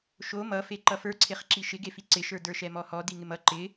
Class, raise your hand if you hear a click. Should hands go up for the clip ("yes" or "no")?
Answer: yes